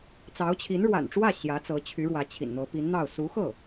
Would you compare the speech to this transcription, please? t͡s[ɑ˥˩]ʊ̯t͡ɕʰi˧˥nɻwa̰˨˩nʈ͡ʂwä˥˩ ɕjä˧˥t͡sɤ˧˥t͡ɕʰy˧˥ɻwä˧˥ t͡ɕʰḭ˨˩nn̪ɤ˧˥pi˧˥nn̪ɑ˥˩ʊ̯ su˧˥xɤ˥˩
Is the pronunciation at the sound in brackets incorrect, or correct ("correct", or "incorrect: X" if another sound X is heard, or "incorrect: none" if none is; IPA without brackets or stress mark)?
incorrect: ɑ˧˥